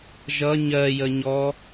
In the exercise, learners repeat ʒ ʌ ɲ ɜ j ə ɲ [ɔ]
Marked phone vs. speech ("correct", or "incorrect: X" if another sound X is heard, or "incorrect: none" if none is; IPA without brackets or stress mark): correct